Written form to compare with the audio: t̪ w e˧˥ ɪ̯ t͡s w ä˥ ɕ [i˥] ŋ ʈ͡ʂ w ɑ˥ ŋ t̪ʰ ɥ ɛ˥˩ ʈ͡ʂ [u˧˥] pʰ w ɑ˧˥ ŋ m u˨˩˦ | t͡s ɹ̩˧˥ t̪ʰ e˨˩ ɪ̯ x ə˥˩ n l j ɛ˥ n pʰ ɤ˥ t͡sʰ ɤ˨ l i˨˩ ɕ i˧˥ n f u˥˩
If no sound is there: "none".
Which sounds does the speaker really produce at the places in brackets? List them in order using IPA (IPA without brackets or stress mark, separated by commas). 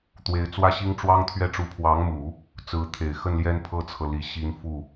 i˥, u˧˥